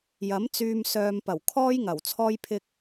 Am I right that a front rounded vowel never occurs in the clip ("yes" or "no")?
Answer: no